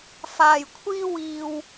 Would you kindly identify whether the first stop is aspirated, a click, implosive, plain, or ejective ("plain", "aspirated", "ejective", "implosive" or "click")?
aspirated